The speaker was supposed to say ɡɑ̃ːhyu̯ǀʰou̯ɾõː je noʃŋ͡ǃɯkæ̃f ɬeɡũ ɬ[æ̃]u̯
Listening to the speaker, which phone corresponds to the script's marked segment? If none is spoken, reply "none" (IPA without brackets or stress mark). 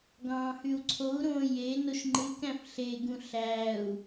æ